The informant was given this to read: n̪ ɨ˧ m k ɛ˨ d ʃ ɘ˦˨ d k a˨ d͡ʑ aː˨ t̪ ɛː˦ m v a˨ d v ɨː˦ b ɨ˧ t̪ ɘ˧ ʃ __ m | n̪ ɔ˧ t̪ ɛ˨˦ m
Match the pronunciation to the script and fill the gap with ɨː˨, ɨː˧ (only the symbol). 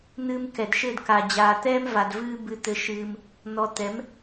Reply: ɨː˧